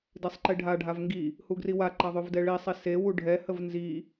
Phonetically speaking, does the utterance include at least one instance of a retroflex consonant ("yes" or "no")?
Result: yes